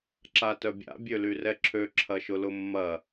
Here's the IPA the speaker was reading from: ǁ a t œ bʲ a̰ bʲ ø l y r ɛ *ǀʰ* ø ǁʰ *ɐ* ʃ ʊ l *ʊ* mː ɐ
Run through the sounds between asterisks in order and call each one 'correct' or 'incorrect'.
incorrect, correct, correct

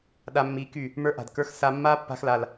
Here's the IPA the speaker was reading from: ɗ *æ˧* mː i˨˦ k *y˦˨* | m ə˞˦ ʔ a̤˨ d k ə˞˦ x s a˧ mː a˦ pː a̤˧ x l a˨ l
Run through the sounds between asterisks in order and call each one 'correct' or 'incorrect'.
incorrect, correct

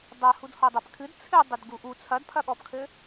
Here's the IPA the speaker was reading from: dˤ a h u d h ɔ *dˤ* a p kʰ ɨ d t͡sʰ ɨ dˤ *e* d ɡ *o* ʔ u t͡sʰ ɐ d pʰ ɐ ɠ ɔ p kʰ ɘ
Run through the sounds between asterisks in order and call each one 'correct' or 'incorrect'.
correct, incorrect, incorrect

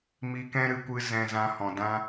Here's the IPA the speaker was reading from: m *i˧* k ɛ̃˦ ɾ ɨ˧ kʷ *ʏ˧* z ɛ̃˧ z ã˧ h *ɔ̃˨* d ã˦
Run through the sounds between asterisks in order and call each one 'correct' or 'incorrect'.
correct, incorrect, correct

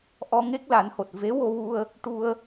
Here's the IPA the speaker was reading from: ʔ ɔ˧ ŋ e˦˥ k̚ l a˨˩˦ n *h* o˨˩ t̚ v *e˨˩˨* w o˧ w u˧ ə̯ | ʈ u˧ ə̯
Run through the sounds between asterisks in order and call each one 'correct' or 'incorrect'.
correct, incorrect

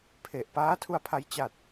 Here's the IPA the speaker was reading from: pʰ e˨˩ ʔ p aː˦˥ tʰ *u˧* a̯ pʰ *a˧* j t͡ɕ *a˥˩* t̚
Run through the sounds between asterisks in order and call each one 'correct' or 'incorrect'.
correct, correct, incorrect

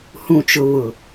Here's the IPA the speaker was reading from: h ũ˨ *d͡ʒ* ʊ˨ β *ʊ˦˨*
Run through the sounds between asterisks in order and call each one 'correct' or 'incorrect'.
incorrect, incorrect

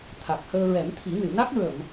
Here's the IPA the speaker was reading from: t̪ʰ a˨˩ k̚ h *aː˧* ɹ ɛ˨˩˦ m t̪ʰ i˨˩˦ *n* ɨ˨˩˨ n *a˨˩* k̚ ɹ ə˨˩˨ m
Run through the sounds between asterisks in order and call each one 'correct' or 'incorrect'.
incorrect, correct, incorrect

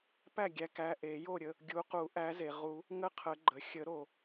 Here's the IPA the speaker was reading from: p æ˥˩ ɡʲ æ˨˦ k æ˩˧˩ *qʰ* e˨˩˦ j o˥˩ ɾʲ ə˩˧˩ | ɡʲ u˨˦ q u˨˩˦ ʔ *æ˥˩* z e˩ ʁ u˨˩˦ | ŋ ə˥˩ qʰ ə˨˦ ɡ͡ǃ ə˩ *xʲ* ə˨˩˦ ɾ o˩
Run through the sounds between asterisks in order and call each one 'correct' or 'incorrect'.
incorrect, incorrect, correct

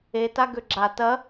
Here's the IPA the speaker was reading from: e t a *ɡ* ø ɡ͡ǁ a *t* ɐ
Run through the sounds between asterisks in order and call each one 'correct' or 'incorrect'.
correct, correct

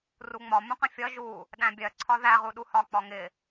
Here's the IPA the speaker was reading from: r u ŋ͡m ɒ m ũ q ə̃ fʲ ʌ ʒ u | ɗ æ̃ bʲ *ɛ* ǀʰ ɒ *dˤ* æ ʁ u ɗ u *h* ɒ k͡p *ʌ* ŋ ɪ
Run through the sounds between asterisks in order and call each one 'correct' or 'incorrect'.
incorrect, incorrect, correct, incorrect

